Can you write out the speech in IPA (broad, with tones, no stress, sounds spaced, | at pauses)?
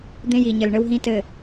d̪ ẽ˦ j i˨ ɲ ɘ˨ l ɳ ɘ˦ w ɦ ĩ˦ t ɘ˨